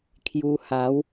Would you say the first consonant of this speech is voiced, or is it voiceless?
voiceless